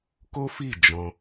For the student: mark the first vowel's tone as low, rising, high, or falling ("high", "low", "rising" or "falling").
high